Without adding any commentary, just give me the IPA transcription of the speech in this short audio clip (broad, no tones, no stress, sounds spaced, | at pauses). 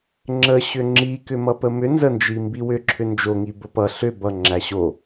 ŋ͡ǁ ə ɕ ʏ ŋ͡ǁ i k ʏ m ʌ p ə m ʏ n z ə n d͡ʒ i m b i w ʏ ǁʰ ʏ n d͡ʒ o ŋ i b ə p ʌ ɬ ʏ b ʌ ŋ͡ǁ æ ɕ o